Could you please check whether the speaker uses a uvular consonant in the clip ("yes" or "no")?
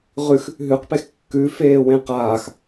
yes